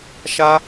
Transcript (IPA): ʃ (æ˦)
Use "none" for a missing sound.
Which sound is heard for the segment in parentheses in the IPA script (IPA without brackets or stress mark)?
a˦